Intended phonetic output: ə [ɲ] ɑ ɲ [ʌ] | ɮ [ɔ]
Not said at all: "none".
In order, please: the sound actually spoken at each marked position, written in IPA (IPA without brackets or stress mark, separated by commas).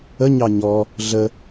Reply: ɲ, ɔ, ə